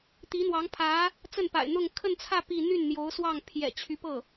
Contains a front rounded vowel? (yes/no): yes